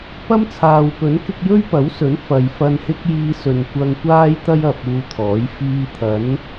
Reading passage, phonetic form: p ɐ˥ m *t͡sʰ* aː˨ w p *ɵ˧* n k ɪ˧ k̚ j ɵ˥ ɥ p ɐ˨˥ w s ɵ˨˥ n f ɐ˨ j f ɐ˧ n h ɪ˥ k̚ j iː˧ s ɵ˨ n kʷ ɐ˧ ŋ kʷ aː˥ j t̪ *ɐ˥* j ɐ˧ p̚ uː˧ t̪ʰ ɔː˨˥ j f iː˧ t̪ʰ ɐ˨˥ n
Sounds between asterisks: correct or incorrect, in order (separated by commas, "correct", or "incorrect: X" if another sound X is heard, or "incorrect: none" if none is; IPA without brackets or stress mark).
correct, incorrect: ɵ˨˥, correct